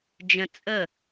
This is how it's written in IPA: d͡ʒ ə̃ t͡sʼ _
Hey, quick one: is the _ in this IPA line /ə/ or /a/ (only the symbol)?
ə